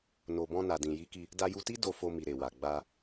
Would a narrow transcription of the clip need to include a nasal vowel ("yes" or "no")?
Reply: yes